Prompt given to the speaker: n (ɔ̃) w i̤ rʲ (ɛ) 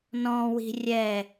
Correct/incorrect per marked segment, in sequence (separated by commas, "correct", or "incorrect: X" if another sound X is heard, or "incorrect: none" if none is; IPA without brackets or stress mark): correct, correct